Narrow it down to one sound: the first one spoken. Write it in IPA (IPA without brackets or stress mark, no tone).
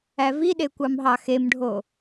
æ